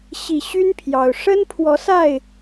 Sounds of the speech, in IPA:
ɕ i˨˩ ɕ y˦ n pʰ j ɑ˨˩ ʊ̯ ʂ ə˦ n pʰ w ɔ˨˦ s a˥˨ ɪ̯

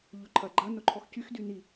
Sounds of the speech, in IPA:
ʎ ʊ ǃʰ ɐ ɡ͡ǃ ɐ n ʊ ǃʰ ɔ x c y x d y n i

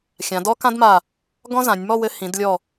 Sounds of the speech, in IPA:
xʲ ã˩˧ d ɔ˥ k ã˥ d m a˧˩ | ɡ ɔ̃˥ z ã˩˧ nʲ m ɔ˥˧ w ɘ˧ h ĩ˩˧ d lʲ ɔ˧˩

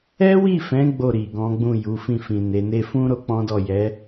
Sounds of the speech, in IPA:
ɛ˦ w i˦˨ f ɛ̃˨˦ ɡ͡b o˦˨ ɾ i˨ ɡ ɔ̃˨˦ ɡ͡b ũ˦˨ j u˨˦ f ĩ˦˨ f ĩ˨ n e˨˦ n e˦ f ũ˦ ɾ o˦ k͡p ɔ̃˦ d ɔ˦˨ j ɛ˨˦

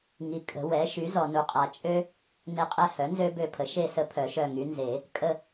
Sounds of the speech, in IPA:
ŋ i˨ kʼ ə̤˨˩˦ w ɛ˩˥ ʃ y˩˥ z ɔ˨ n u˨ qʼ a˨ t͡ʃʼ ø˦ | n e˦˨ qʼ ɛ˦ h œ˩˥ n z ø˦ b ø˦˨ pʰ ə˩˥ ʃ e˦˨ s ə˦ pʰ œ˨˩˦ ʃ œ˦˨ ŋ y˩˥ n z e˨˩˦ | kʼ ə˦˨

